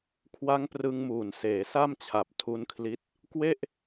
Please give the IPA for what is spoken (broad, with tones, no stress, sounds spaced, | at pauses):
kʰ w a˦˥ ŋ p r ɯ˧ ŋ m uː˨˩ n s eː˩˦ s a˥˩ m t͡ɕʰ a˨˩ p̚ tʰ u˦˥ n kʰ l i˦˥ t̚ | k w e˥˩ ʔ